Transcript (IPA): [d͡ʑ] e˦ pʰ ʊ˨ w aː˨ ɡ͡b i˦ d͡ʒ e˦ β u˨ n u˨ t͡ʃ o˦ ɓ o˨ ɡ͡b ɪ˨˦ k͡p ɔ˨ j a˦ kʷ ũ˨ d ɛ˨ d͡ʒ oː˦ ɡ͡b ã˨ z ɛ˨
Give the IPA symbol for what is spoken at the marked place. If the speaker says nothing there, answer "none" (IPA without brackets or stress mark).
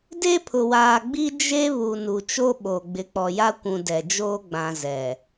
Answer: d